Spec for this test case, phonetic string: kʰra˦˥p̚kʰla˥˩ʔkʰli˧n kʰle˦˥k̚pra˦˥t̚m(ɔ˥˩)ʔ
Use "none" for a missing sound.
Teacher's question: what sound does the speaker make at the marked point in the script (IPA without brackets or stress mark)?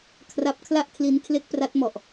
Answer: ɔ˨˩